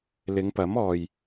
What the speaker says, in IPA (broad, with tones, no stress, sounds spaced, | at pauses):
l ɪ˨˧ ŋ p ɐ˨˥ m ɔː˨ j